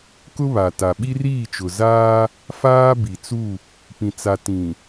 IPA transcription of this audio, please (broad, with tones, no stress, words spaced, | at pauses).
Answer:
kʊ˦βa˨ ta˨ɓi˦riː˦˨t͡ʃʊ˨ zaː˦ | faː˦bi˨t͡su˦˨ | pĩ˨t͡sa˨ tĩ˨